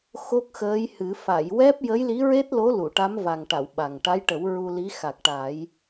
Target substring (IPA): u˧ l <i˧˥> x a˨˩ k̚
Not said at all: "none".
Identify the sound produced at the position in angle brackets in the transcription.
i˧˥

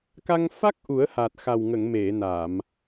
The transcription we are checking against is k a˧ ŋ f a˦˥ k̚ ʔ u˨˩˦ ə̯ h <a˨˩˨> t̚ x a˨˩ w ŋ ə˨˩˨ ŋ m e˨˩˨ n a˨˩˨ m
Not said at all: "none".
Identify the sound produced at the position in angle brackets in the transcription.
a˨˩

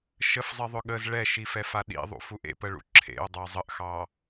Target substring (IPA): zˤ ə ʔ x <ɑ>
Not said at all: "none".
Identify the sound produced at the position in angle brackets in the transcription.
ɑ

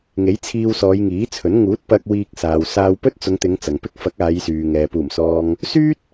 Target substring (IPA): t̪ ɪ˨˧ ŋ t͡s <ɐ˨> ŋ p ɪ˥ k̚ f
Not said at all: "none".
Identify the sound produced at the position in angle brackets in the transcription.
ɐ˨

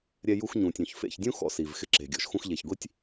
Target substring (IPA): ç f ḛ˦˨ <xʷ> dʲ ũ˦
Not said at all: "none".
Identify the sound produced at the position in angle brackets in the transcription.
ç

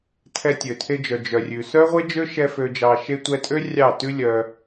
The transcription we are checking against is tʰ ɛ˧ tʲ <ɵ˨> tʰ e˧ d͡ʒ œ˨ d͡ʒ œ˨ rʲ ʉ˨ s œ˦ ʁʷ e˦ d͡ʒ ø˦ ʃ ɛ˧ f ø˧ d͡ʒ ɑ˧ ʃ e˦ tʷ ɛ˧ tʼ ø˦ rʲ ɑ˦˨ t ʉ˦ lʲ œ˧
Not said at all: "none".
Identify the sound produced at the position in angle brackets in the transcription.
ø˨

